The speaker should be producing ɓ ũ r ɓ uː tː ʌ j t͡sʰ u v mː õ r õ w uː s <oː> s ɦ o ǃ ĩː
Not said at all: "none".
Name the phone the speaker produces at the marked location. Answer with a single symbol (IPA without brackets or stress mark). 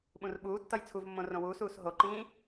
uː